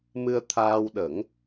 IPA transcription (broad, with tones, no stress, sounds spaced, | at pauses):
m ɨ˧ ə̯ t̪ʰ aː˧ w ɗ ə˨˩˦ ŋ